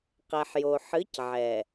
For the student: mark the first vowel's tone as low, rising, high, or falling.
low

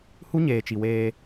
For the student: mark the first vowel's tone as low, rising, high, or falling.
high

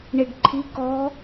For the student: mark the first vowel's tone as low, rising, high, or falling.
low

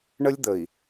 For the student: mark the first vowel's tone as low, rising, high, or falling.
high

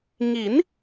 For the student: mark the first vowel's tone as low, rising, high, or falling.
rising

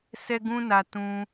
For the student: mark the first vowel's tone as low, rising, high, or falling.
high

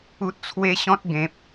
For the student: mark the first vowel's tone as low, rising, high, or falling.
high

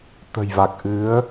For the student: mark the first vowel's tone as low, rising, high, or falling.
low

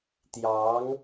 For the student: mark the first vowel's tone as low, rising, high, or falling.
rising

